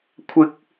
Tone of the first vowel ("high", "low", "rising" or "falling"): high